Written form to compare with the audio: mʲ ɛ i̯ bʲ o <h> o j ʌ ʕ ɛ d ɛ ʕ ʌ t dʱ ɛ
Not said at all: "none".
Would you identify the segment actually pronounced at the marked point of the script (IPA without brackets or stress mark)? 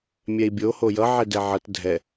h